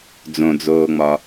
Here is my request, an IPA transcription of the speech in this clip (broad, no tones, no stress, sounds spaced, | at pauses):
d͡z õ d͡z oː ŋ͡m ɒ